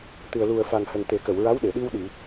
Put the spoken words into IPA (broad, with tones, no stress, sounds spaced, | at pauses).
t̪ ɨ˨˩ ə̯ l u˨˩ ə̯ f a˨˩ ŋ h ə˨˩ ŋ t̪ e˨˩˦ k ə˨˩˨ w ɹ a˧˥ w ɗ e˨˩˨ ɗ i˧ w ɗ i˨˩˨